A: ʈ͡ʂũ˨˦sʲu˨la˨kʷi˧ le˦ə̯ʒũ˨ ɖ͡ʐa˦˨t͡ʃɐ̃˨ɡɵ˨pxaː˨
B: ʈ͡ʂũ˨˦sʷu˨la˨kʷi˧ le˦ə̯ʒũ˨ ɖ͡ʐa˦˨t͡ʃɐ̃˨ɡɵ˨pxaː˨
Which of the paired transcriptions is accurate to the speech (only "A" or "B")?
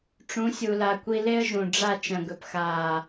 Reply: A